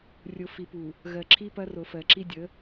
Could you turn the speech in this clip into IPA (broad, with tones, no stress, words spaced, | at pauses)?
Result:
rʲo˨ fi˨pu˨ | ɣɜ˨ǁʰi˦pɐ˦ ro˨fɜ˨ǁi˦ dʲə˨˦